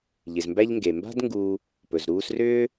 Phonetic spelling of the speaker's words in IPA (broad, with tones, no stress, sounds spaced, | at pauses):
ʎ ɪ˩ z m b æ˦ ʎ ŋ ɡ e˩ m b a̤˦ d ŋ ɡ uː˨ | p ɵ˩ z ɾ uː˦ s r ʏː˥